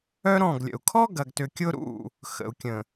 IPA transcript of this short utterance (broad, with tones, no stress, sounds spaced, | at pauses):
œ˦ ɾ ɔ̃˦˨ ɡ lʲ ə̰˨ u̯ kʰ ɔ˦ ɡ ɐ˨ ɡ t ʏ˨ kʲ ʊ˦ ɾ ṵ˦˨ | x ə̰˨ u̯ kʲ ə̃˨